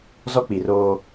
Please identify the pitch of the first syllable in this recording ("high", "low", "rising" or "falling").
high